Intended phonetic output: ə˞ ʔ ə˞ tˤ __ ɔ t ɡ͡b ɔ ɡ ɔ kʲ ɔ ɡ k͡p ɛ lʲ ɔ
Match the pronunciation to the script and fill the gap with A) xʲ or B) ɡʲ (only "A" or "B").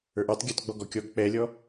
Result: B